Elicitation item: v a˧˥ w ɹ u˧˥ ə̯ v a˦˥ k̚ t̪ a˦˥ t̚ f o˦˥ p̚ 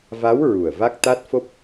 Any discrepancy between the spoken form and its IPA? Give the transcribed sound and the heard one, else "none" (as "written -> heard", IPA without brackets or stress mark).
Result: u˧˥ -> u˨˩